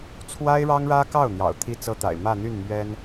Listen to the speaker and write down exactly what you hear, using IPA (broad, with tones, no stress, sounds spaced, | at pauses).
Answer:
t͡sʰ w a˥ ɪ̯ ɻ ɑ˥ ŋ ɻ ä˥ k ɑ˥˩ ʊ̯ n̪ j ɑ̰˨˩ ʊ̯ t̪ʰ i˥ t͡s ɤ˥ t̪ a̰˨˩ ɪ̯ m ä˥˧ n̪ y˥˩ n m ɥ ɛ˥ n